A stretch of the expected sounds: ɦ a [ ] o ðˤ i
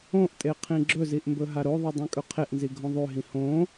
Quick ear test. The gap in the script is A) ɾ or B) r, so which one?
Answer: A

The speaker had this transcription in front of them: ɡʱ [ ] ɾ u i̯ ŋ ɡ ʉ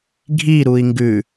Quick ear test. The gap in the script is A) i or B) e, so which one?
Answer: A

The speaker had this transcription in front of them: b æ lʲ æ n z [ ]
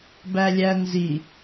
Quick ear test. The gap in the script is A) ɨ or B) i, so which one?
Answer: B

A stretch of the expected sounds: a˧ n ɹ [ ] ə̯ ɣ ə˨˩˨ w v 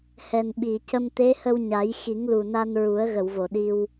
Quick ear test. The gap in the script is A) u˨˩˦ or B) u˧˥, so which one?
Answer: A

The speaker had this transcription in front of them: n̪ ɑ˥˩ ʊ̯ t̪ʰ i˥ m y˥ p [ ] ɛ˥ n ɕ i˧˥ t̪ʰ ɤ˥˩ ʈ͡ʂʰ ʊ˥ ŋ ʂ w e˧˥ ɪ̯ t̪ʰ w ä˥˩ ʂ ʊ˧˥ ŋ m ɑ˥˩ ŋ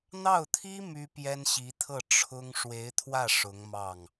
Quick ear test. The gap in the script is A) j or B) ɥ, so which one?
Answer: A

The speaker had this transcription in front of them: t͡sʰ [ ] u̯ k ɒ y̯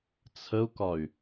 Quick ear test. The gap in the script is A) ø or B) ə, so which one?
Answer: B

